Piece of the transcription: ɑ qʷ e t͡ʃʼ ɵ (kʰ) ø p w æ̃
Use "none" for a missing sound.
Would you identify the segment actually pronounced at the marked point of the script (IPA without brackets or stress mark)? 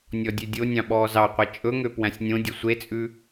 ŋ